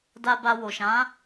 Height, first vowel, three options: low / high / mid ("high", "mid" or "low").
low